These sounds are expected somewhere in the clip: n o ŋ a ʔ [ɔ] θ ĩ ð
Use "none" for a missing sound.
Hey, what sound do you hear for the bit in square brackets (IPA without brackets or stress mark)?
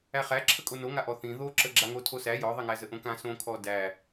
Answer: ɔ